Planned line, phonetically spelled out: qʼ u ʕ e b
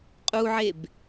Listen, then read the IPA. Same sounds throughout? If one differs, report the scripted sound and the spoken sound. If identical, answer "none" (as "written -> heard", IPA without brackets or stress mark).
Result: none